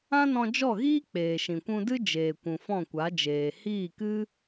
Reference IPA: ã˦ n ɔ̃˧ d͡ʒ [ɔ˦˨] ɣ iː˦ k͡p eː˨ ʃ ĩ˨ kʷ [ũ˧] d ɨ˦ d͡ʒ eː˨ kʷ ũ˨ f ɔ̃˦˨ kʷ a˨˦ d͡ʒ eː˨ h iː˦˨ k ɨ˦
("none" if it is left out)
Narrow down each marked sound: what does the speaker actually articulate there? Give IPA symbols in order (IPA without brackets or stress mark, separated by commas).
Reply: ɔ˦˨, ũ˧